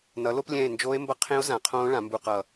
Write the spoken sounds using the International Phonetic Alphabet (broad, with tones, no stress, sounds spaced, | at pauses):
n ʌ˩˥ l o˦˥ p lʲ ɛ̃˦˨ e̯ n d͡ʒ oː˦˥ e̯ m b ʌ˦˥ qʰ ẽ˦˥ o̯ z ã˩˥ qʰ õː˦˥ ɭ ã˩˥ m b u˦˨ q ʌ˦˨